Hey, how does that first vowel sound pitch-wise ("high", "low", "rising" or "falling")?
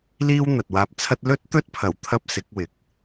high